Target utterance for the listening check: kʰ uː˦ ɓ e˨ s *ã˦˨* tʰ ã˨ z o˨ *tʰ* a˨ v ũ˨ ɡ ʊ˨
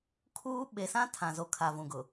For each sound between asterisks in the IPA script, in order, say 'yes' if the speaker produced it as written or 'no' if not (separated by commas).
no, no